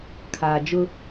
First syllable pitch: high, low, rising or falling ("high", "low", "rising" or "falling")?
low